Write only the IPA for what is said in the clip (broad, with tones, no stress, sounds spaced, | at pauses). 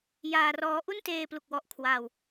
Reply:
j aː˧ r ɔː˦˥ ʔ u˥˩ n t eː˧ p l u˨˩ k̚ w ɔ˦˥ ʔ kʰ w aː˧ w